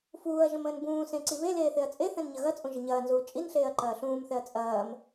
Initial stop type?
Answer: plain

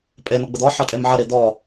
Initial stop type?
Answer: ejective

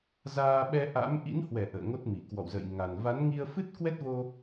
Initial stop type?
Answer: implosive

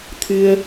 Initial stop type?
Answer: aspirated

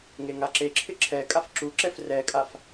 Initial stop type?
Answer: click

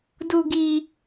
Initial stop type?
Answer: plain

